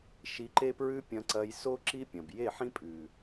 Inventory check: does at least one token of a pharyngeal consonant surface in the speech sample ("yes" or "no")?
yes